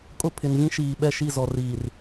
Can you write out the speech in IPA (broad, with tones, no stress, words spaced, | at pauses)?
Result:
kʼʊ˦˨pʰɪ˨nvĩ˦ʃiː˨ ɓɛ˦˨ʃi˦˨zɔ˨riː˨r